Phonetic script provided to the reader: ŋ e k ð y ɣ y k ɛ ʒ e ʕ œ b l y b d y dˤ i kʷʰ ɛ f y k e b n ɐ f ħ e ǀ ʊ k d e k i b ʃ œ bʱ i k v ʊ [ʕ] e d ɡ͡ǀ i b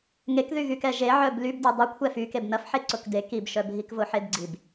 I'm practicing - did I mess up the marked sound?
yes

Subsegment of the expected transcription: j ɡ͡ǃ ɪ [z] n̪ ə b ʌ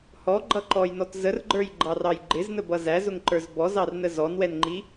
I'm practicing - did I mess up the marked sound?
no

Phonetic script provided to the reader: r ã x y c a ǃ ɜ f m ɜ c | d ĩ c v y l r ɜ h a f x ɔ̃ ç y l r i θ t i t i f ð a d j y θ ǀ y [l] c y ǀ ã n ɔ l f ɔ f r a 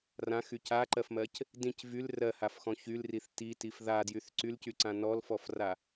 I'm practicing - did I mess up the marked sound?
no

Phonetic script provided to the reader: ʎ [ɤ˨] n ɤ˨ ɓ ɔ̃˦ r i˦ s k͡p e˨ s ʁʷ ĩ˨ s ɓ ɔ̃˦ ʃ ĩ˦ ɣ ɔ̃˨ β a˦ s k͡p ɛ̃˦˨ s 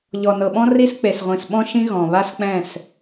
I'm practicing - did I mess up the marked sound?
yes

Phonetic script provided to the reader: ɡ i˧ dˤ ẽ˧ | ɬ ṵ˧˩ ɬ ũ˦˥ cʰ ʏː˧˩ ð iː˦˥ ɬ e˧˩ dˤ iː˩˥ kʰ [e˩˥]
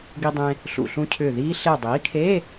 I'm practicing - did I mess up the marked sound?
yes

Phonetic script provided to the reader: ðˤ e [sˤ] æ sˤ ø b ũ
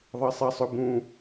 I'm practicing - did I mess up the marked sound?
no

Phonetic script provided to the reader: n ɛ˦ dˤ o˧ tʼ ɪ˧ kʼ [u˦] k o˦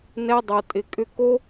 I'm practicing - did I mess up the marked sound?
yes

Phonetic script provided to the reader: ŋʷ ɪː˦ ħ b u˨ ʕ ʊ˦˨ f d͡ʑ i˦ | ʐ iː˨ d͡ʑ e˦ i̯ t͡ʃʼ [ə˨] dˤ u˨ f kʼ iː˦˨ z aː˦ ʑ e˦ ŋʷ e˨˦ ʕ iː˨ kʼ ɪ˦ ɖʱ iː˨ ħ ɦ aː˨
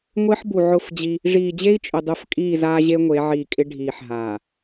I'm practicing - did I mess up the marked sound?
yes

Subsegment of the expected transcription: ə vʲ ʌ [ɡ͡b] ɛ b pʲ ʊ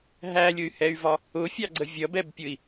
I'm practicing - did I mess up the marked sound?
yes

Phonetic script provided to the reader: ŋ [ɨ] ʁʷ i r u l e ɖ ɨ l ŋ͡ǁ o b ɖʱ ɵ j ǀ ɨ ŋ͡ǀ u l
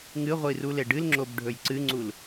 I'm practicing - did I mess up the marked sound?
no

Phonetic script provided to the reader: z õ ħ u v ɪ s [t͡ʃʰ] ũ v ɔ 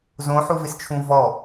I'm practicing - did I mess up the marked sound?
no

